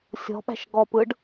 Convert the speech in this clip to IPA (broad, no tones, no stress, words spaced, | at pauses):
sʲɔ̤ɓæ̤ʃ ɡɔpɯɖ